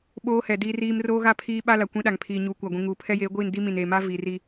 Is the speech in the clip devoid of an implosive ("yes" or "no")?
no